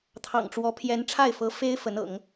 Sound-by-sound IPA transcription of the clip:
t̪ʰɑ̰˨˩ŋʈ͡ʂwɔ˧˥ pʰjɛ˧˥n ʈ͡ʂʰa˥˩ɪ̯fɤ˧˥fe˥ɪ̯ fə˧˥nɤ̰˨˩˦ŋ

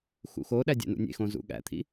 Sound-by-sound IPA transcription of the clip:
xṵxoɗæ dʲæ̰nṵnʲḛxõ zṵɠæ̰t̪ʰḭ

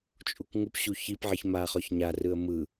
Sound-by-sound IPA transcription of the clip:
t͡ʃʼukŋupɕu çipʕiç maχɔç ɲarɯə̯ mɯ

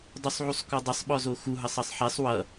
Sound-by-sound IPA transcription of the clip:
dˤusˤʕusˤkɔdˤəsˤ ɓɔzoxu ɦʌsˤʌsˤħɛsˤ wʌ

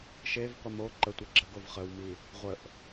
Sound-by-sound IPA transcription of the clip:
ʃevqʷə mo ǃətʷi ɡ͡ǁəɡov χəwmi | ʁʷəʔ

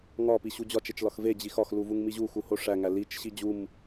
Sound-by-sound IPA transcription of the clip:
ŋɒ piɕud͡ʑɒt͡ʃ et͡ʃlɒxve d͡ʑixɒx luvuŋmiʑu xuhoʂæ ŋælit͡ʃ ɕid͡ʑum

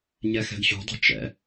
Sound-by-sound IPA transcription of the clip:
ɲɛxɛ̤ɡɕṳdˤɛ̤ t͡ʃɛ̰

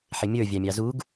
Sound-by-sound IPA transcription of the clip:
ħɪmʲə˞ vʲɑmʲɑzuɡ

